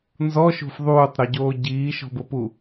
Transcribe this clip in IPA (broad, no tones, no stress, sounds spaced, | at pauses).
n z ɔ ʃ o̤ f ðˤ uː tˤ ɾ ɔ ɟ oː ɟ iː ʃ ɔ̤ b ʊ p u